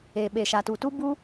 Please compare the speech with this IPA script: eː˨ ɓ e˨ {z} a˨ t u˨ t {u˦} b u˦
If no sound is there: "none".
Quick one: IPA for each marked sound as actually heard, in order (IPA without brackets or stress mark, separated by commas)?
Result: ʃ, u˦